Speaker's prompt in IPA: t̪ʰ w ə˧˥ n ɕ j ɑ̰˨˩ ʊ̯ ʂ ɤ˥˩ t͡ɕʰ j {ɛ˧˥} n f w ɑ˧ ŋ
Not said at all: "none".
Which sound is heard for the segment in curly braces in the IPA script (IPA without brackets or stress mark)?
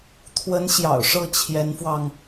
ɛ˧˥